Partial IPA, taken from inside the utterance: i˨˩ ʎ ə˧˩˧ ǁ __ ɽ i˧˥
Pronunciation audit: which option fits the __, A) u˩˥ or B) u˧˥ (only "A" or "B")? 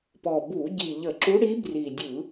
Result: B